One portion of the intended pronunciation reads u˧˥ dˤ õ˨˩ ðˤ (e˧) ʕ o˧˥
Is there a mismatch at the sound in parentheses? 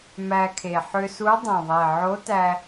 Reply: yes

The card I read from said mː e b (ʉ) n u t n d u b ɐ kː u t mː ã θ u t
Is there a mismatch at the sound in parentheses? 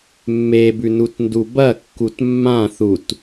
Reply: no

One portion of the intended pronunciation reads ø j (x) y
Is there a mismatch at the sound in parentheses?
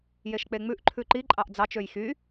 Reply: no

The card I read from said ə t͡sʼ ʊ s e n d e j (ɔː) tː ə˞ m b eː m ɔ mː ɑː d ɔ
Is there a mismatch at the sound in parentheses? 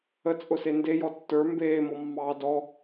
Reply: yes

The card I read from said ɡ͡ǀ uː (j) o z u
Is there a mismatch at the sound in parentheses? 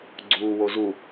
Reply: yes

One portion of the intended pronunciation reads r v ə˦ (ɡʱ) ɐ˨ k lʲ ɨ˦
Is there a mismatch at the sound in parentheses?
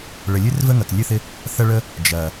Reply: yes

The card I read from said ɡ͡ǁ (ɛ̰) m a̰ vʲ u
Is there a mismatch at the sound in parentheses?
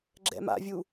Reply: no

